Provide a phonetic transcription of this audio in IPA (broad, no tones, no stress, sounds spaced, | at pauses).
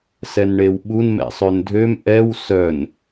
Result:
s ɛ n ɳ e w ɓ u n m ɛ̰ sˤ ø n dʱ ø m ʔ ɛ w s œ n